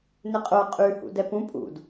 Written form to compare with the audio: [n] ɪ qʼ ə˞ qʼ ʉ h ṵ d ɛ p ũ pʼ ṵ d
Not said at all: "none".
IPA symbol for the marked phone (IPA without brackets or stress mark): n